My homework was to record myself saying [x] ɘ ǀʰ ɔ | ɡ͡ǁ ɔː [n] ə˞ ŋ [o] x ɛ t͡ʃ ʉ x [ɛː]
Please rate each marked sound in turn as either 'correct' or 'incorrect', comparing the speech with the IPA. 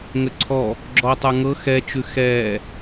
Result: incorrect: ŋ, incorrect: tˤ, incorrect: ɤ, correct

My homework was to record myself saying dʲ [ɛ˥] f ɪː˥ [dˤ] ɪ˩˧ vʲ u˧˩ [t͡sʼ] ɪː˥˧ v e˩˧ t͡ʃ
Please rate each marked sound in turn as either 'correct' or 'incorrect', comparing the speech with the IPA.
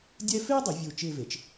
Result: correct, correct, incorrect: t͡ʃ

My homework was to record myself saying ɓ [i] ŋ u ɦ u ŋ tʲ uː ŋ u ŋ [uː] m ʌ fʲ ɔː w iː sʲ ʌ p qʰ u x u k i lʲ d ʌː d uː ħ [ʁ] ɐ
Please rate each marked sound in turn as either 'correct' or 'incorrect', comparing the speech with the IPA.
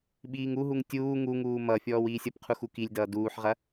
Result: incorrect: iː, correct, correct

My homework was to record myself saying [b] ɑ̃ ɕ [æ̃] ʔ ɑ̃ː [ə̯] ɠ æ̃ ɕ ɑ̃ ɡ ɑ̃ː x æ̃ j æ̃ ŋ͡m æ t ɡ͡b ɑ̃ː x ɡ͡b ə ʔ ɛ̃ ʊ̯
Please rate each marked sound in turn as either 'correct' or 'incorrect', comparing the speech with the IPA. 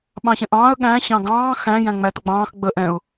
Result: incorrect: ɓ, incorrect: ɛ̃, correct

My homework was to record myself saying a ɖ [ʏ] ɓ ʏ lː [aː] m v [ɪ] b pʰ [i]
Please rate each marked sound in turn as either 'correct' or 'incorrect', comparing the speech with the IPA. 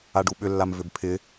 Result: incorrect: u, incorrect: a, incorrect: ʏ, incorrect: ɪ

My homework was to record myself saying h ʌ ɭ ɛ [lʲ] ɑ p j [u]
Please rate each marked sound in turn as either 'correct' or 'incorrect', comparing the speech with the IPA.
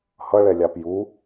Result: correct, correct

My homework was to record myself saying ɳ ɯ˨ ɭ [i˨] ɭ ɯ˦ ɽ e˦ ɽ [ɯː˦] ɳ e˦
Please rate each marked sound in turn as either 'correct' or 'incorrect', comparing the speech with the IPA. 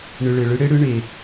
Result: incorrect: e˨, incorrect: ɯ˦

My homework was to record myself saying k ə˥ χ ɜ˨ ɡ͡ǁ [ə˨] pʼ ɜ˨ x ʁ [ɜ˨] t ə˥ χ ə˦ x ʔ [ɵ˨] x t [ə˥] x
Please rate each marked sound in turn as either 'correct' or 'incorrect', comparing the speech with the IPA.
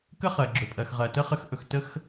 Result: incorrect: ɵ˨, correct, correct, correct

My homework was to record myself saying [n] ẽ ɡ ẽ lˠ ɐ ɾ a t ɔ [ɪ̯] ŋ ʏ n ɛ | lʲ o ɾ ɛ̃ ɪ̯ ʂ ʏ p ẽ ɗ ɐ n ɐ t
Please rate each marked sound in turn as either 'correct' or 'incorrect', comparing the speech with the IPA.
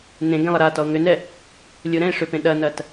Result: correct, incorrect: ʊ̯

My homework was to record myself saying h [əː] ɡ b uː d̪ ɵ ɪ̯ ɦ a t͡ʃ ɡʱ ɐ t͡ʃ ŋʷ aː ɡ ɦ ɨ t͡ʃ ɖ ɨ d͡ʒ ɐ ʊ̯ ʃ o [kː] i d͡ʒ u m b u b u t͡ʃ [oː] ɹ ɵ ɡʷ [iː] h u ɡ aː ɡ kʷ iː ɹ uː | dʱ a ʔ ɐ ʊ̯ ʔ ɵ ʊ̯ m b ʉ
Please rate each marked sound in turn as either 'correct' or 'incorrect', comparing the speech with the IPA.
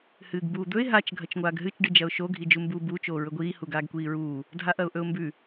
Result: incorrect: ɨː, incorrect: ɡʱ, correct, correct

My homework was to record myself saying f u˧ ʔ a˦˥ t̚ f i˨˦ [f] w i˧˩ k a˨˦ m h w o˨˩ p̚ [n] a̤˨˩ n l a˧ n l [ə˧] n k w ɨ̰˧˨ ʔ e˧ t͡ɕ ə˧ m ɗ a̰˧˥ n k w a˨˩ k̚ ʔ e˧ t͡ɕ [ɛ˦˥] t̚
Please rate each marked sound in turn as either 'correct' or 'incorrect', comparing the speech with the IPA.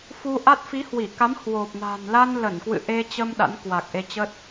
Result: incorrect: h, correct, incorrect: ə˧˩, incorrect: ə˦˥

